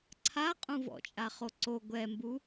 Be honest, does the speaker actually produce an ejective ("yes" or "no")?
yes